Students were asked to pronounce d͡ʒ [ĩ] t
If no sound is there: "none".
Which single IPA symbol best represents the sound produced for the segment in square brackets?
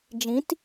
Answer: ĩ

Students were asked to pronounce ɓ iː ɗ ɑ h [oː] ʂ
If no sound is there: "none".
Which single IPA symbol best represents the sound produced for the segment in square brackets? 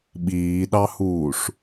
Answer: uː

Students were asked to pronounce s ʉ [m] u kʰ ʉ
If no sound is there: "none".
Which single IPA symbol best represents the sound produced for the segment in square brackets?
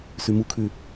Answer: m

